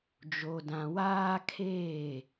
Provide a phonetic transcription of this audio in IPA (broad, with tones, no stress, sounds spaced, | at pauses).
d͡ʒ o˨ d ã˨ w aː˦ kʰ eː˦˨